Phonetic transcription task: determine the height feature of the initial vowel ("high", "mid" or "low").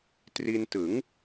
high